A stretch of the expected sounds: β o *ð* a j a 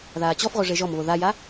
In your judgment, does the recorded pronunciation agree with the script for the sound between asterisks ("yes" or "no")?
yes